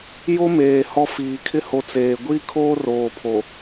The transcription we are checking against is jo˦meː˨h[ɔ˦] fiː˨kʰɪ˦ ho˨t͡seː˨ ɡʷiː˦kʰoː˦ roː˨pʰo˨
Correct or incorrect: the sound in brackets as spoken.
incorrect: ɔ˦˨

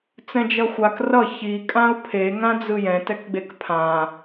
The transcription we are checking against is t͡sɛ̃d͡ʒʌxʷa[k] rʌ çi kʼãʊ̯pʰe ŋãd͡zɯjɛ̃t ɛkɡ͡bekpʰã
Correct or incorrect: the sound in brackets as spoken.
correct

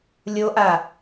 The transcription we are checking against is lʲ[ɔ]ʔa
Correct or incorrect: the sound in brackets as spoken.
incorrect: o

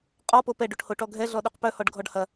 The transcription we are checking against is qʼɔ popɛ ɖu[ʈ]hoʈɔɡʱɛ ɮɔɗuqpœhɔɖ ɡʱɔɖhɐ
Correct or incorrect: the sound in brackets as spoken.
correct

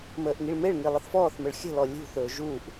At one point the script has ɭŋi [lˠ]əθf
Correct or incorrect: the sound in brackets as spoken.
correct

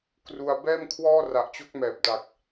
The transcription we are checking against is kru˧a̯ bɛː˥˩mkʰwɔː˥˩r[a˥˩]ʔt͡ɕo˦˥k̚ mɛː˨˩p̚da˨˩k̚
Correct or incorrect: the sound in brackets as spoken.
incorrect: a˨˩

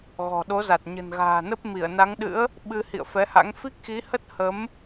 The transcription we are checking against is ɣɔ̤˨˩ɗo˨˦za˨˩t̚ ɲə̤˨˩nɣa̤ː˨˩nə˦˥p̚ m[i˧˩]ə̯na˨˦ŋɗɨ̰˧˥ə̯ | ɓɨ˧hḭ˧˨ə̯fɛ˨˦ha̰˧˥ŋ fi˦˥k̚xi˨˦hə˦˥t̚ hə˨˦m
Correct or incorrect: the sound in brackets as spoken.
correct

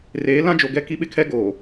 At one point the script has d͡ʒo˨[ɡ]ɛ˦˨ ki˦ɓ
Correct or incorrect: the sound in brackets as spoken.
correct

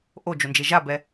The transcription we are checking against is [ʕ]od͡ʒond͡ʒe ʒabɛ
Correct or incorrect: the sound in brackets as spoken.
incorrect: ʔ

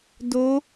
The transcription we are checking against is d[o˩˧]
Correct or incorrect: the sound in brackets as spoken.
correct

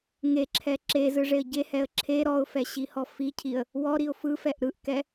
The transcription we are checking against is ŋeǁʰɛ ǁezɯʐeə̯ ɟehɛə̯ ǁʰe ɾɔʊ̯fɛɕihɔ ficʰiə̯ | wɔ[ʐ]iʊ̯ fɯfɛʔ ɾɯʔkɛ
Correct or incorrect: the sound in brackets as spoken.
incorrect: ɾ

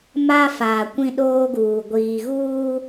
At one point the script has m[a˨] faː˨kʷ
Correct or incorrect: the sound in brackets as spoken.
incorrect: a˦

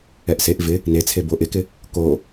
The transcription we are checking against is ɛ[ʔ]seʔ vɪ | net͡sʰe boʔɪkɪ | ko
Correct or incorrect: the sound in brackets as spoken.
correct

